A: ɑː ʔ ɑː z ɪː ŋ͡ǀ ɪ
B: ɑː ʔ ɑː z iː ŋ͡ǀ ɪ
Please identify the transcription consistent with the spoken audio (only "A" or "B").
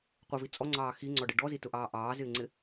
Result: A